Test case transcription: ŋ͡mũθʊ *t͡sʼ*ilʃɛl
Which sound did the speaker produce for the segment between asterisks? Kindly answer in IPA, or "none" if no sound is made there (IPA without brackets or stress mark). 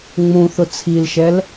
t͡sʰ